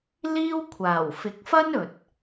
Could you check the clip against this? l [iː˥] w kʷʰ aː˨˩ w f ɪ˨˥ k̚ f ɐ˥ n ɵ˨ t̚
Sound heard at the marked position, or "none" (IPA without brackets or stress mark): iː˥